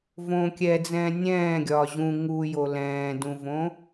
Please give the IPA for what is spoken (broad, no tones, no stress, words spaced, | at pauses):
võ kʲɛd͡zɛ̃ː nʲɛ̃ː ɡʲɒːʑũ ŋujo lɛ̃ːdũvõ